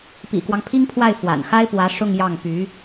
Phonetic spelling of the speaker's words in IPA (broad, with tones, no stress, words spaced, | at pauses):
pḭ˨˩kwɑ˦ŋpʰi˥ŋpʰwa˥˩ɪ̯ fwa̰˨˩n xa˥ɪ̯pwä˧˥ ʂʊ˥˧ŋjɑ˥˩ŋ py˧˥